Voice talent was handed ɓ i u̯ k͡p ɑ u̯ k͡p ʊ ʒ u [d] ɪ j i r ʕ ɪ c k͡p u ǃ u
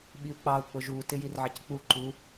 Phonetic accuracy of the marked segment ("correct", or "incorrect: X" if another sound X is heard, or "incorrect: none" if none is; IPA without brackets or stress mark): incorrect: t